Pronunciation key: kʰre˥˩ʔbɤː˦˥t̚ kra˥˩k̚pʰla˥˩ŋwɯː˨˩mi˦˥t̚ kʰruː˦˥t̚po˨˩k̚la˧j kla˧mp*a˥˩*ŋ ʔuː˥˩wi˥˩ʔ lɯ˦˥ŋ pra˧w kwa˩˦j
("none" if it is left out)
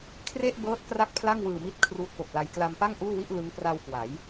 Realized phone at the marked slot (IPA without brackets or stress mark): a˥˩